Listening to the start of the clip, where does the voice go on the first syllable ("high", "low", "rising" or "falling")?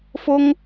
high